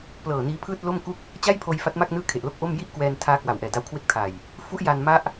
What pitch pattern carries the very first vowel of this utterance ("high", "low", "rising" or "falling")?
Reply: low